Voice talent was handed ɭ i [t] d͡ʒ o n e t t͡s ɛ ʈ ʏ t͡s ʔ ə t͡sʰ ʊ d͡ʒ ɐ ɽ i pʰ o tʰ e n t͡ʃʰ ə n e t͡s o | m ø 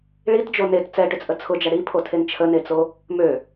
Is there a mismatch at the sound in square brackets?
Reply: no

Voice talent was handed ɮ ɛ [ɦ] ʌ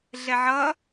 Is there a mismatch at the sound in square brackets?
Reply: yes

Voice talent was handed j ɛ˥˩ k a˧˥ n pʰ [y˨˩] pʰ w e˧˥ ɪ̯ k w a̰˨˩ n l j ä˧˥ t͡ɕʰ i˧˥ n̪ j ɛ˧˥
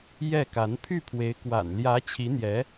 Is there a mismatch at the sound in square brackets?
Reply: yes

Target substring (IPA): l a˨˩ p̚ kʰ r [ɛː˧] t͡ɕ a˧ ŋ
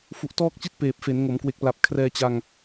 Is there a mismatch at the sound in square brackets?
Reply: no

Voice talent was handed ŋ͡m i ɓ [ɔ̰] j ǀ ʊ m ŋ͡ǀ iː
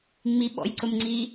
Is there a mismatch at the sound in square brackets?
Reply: no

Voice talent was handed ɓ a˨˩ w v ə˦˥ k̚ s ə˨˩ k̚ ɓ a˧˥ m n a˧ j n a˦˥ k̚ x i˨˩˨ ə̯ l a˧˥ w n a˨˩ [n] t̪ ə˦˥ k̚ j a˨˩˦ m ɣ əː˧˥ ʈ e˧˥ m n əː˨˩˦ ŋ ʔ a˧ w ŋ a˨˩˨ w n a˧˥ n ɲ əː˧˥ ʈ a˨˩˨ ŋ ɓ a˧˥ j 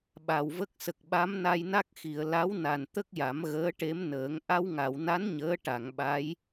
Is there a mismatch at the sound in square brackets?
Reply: no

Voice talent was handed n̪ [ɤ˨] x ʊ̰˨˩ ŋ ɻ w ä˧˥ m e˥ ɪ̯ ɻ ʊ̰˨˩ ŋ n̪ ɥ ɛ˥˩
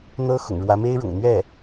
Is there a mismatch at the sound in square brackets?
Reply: yes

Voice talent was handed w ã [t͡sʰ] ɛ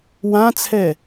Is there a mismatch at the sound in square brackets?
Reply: no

